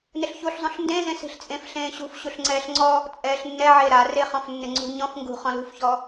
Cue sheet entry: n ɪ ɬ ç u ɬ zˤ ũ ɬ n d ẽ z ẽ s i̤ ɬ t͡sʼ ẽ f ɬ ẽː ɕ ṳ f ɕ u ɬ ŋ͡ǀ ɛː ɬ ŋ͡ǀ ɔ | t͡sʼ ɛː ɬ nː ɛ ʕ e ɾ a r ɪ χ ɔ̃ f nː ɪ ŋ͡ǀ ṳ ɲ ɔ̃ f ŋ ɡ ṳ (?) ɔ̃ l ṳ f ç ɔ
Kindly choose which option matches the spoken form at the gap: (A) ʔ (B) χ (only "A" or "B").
B